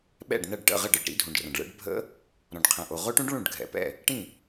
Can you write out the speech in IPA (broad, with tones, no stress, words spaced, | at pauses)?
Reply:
ɓɛ̰˥˩ɖnɐ˥˩ɖ ʈə̰˥˩ʁə˥˩ɖɯ˥˩ɖ ɾḭ˦˥dʱũ˩ɖrɐ̃˩ɖɭɛ̰˦˥ɖ bʱə̰˦˥ | ɾɔ̃˩ɖqʰɛ̃˩ʔo˩ ʁo˦˥ʈũ˦˥ɖ ɭũ˥˩ɖɡʱɛ̰˩pɛ̰˥˩ | ʈĩ˥˩